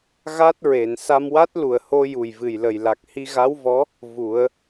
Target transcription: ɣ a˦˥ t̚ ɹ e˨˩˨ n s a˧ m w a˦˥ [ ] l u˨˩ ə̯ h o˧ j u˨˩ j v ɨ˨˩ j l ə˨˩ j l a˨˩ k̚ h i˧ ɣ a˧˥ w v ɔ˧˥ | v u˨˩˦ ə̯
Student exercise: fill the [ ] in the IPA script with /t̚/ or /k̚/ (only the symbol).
t̚